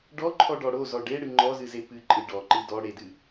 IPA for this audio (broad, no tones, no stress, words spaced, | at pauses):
ɖɔǃʰɔɖɔ ɽozɔ ɖeɽɨ ŋ͡ǃɔzɨze pɨǃʼɨ ɖɔǃɨ dɔ ɽedɨ